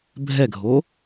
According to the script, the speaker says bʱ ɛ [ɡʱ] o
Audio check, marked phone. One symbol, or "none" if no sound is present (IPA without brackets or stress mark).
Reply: ɡʱ